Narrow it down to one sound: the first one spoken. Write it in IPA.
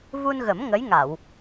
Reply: v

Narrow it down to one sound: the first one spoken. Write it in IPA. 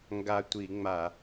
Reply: ŋ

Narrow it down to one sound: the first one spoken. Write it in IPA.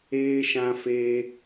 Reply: eː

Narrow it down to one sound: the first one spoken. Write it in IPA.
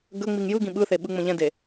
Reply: ɡ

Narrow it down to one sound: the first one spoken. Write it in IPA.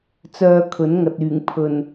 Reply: t͡s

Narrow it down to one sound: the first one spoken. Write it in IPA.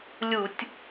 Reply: lʲ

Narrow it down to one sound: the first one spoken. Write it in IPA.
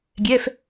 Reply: ɡʲ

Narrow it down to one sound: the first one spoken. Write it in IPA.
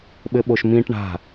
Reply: ɓ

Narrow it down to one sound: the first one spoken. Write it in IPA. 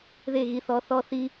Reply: ð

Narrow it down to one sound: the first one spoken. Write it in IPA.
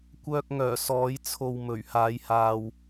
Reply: kʷ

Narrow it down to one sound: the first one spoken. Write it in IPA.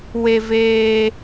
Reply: w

